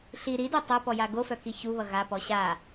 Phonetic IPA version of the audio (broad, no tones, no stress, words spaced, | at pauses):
ɬi ɾido tˤopɔja ɡofœki çuβʌ ɣapɔ ɕa